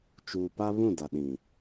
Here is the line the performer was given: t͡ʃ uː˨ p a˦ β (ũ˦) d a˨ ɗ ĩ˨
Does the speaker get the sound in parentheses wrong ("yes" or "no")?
yes